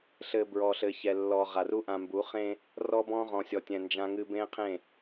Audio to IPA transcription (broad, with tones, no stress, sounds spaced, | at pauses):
ɬ ɘ˨ b ɹ ɔ˨ ɬ ɘ˨ ç ɛ˨ lː ɔ˨ ʁ a˨ r u˦ ʔ ã˨ m b u˨˦ χ ẽ˦ | r ɔ˦ b ɔ̃˦ ʁ ɔ̃˨ sʲ ɔ˨ tʲ ɛ̃˨ n d͡ʒ ã˦ ŋ ɨ˦ b ẽ˦ qʰ ẽ˦˨